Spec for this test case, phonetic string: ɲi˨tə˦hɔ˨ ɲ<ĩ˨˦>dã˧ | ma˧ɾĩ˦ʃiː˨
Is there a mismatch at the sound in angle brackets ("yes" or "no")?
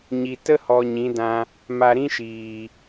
no